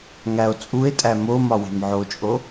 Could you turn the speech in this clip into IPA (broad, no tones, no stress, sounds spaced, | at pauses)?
ŋ æ o̯ t͡sʼ u e̯ tʼ æ m o m ɒ w e̤ m ʕ o t͡ʃʼ o